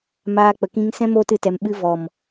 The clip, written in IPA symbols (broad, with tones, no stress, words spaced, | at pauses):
maː˧k͡pə˨kĩ˧ŋsɛ̃˦ moː˧tɨ˨tɛ˨m ɓɨ˧ vɔ˨m